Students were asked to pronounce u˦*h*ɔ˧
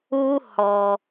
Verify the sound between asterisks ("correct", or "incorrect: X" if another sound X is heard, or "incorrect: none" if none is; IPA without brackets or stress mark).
correct